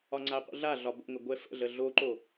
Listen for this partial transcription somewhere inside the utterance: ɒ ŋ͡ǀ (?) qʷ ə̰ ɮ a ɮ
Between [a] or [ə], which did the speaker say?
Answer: a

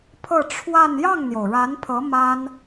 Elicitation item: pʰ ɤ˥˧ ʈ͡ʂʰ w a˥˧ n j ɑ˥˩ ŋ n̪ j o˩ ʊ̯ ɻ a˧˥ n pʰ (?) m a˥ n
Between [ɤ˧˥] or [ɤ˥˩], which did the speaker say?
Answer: ɤ˧˥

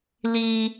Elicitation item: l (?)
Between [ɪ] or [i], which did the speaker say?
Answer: i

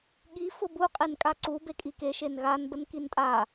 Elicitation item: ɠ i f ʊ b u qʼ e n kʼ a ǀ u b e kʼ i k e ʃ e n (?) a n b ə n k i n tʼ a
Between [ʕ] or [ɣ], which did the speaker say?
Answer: ɣ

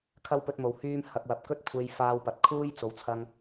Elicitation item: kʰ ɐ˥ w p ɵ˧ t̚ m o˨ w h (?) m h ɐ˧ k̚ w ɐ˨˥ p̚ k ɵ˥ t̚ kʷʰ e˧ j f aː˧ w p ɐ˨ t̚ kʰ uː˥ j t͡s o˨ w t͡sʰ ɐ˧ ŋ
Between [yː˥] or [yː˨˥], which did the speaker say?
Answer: yː˥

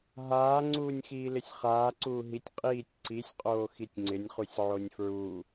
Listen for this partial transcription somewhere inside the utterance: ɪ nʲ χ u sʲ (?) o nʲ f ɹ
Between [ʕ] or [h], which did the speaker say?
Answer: ʕ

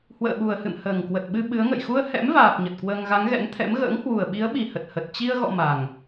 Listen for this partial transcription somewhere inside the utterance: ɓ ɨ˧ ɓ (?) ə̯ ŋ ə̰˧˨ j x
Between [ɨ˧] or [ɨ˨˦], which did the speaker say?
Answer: ɨ˨˦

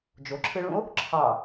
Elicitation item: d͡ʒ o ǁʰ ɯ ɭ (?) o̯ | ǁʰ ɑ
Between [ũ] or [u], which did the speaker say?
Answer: ũ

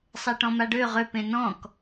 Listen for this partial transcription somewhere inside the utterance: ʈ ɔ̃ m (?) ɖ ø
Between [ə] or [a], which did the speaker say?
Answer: a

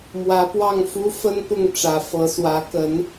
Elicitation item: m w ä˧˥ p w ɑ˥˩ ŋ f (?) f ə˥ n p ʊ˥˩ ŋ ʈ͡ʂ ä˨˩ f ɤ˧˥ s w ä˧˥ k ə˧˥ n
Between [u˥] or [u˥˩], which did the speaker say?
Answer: u˥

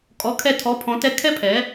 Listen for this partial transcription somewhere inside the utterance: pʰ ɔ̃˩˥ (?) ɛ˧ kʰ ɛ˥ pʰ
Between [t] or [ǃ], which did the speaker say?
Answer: t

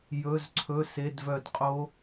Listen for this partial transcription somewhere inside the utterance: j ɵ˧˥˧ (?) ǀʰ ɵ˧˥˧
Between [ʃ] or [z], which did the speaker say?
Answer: z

